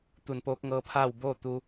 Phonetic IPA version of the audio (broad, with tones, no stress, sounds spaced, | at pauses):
t̪ u˧˩ n p oː˧˥ k̚ ŋ ɤː˧˥ pʰ aː˥˨ w b oː˥˨ t̪ u˧